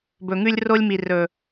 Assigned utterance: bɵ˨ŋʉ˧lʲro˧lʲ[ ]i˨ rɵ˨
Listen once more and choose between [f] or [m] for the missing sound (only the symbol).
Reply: m